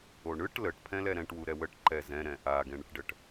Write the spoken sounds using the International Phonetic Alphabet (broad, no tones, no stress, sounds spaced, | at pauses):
o ɳ ɯ ʈ l ə ʈ pʰ ɛ̃ l ɛ ɾ ɛ̃ ʈ w u ɾ ɛ w ə ʈ ǃ ɛ z ɛ̃ ɾ ɛ̃ ʔ a ɡ ɛ̃ ɳ ə ʈ ɖ ə ʈ